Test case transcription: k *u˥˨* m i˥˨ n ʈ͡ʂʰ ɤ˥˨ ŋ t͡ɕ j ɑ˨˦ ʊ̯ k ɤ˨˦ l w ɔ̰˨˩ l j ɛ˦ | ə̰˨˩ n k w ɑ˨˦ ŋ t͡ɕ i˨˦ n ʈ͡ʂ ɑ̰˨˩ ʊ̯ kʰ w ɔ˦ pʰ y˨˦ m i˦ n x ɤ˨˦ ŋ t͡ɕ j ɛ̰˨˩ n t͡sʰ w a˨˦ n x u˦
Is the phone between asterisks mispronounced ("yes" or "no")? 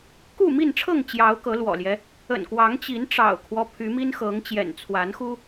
no